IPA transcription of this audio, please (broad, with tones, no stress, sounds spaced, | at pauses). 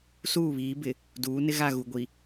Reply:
s uː˦˨ β iː˨˦ b ɪ˨ | d uː˨˦ n ɪ˦ ɣ a˦˨ ɣ u˨ ɡʷ i˨